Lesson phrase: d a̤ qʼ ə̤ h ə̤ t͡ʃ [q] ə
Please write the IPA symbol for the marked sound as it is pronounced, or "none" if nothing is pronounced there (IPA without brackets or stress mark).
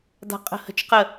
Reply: q